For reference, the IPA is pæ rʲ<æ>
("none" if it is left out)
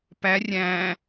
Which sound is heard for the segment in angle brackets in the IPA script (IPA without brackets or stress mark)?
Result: æ̃